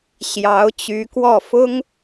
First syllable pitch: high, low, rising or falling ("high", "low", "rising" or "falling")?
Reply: rising